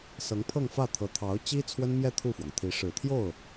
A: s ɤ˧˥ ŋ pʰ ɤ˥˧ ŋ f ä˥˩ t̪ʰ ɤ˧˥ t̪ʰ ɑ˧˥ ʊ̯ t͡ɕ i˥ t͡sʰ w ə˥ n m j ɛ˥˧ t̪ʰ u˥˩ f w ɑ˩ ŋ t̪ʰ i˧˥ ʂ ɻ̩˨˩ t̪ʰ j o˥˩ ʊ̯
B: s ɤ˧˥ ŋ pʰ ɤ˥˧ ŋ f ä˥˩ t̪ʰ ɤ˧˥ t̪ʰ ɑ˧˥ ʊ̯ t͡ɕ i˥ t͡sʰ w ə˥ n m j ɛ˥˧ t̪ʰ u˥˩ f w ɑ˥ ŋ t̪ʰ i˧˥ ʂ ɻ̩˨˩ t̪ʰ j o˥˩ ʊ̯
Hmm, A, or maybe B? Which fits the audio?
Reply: A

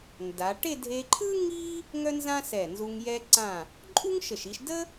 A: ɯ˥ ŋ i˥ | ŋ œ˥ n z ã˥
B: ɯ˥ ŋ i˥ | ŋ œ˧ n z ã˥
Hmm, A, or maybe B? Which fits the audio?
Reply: A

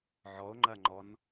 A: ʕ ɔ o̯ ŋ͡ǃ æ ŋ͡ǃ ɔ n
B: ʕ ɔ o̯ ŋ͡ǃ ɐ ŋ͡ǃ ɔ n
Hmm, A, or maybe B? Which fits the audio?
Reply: B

